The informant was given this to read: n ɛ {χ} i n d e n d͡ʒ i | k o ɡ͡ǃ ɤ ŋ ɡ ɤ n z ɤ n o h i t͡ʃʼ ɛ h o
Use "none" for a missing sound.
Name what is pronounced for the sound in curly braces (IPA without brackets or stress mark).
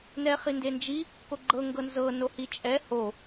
χ